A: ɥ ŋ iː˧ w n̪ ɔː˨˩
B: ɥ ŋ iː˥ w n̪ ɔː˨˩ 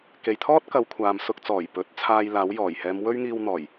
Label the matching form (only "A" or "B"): A